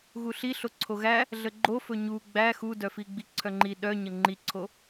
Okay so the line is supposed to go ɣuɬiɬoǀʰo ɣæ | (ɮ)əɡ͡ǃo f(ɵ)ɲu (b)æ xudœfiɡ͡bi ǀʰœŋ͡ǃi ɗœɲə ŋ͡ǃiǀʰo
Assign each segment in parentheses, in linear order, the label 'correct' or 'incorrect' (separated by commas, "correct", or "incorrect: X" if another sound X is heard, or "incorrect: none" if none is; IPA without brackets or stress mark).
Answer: correct, correct, incorrect: ɡ͡b